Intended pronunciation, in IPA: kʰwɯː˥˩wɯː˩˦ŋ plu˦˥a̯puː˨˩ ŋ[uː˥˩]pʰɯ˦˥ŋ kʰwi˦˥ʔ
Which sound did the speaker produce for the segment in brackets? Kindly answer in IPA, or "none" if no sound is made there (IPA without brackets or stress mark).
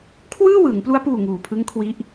uː˨˩